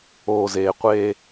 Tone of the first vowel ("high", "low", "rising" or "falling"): low